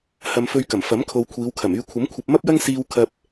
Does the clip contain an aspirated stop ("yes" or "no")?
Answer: yes